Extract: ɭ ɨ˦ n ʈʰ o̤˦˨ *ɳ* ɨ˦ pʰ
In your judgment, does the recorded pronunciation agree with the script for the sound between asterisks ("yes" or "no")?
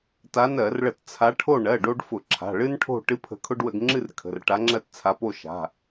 no